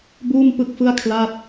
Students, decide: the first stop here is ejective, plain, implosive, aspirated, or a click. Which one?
plain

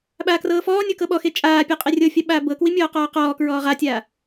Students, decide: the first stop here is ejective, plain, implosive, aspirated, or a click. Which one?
implosive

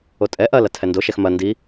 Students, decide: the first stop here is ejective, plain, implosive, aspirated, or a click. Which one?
ejective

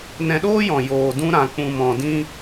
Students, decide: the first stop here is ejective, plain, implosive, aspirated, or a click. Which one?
implosive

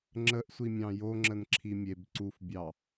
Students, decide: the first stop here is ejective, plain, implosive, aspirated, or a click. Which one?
click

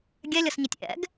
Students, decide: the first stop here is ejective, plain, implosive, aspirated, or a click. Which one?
plain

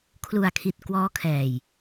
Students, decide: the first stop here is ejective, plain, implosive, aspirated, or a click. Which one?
aspirated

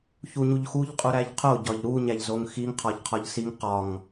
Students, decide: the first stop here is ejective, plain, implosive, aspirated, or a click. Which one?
ejective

